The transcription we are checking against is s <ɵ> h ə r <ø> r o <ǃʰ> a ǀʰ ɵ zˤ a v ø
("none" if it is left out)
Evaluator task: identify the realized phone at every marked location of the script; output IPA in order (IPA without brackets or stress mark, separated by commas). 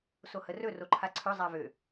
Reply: o, ɵ, ǃʰ